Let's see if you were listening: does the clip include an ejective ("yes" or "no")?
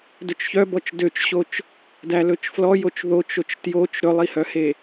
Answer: no